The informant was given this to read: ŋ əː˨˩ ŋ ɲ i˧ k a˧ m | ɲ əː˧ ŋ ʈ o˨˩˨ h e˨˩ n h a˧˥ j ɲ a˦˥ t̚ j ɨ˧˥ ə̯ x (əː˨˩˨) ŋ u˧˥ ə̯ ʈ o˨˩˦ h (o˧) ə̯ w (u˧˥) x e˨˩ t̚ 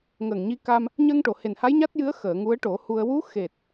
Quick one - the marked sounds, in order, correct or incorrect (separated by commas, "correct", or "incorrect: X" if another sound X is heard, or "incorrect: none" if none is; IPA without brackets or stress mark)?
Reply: correct, incorrect: u˧, correct